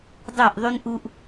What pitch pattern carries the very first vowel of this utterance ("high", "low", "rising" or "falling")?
falling